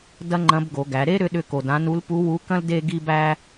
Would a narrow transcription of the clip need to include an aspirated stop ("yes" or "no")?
no